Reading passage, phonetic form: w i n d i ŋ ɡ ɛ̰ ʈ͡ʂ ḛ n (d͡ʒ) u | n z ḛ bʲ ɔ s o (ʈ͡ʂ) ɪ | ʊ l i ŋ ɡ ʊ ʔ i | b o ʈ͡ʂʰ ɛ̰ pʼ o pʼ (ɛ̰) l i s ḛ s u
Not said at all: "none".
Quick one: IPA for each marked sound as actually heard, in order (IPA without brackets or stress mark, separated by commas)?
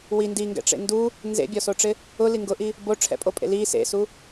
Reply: d, ʈ͡ʂ, ḛ